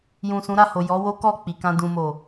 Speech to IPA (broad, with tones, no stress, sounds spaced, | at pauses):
j ũ˨ s ũ˨˦ ɾ a˦˨ h o˨ j ɔ˨˦ w o˦ k ɔ˦˨ k͡p i˨ k ã˧ d ũ˨ m o˨